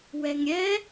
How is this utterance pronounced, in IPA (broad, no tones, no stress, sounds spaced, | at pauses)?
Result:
w ɛ ŋ ɾʲ ɛ